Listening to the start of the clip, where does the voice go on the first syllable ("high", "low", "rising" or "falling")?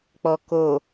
low